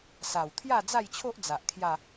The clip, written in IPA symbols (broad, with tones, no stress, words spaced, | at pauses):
sa˨˩wt̪ʰja˥˧d͡za˥˧jt͡ɕʰo˦ʔ d͡za˨ʔkʰja˥˧